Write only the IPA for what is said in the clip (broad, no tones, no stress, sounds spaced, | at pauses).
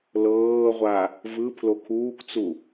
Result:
l ɤː ʁʷ a | v ɯ pʰ l o kʰ uː kʷ t͡s u